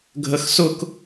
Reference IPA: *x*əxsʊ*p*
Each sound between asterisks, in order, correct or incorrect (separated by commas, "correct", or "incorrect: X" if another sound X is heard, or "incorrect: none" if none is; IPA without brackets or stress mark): incorrect: ɡʱ, incorrect: k